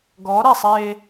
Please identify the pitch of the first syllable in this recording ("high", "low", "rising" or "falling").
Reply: rising